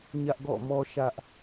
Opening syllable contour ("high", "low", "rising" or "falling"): high